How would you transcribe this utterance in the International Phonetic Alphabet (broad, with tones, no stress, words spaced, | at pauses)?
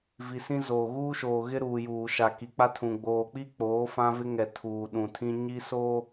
vi˨sĩ˦zoː˨ ɣuː˦ʃoː˨ɣɪ˦ ɾuː˨juː˨ʃa˨ ki˨k͡pa˦tʰũ˨ ɡ͡boː˨k͡pi˦ k͡poː˨˦fã˦vɪ˦ ŋɛ˨ tʰuː˨ɗũ˨tʰĩ˦ ɲi˦so˦